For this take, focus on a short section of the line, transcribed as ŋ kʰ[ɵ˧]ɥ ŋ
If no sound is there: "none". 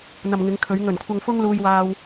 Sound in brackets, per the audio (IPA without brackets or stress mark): ɵ˨˧